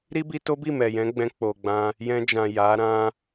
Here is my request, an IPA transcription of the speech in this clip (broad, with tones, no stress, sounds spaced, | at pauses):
ɾ i˦ b i˧ t o˦ b i˦˨ m ɛ˨ j ɛ̃˨˦ ɡ͡b ɛ̃˧ k͡p o˨ ɡ͡b ã˧ | j ɛ̃˧ d͡ʒ ã˨ j a˨˦ ɾ ã˦